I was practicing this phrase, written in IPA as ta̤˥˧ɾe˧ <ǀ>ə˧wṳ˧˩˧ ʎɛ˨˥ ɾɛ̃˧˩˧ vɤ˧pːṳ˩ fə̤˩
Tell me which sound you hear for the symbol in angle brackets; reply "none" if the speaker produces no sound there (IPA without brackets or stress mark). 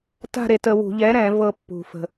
t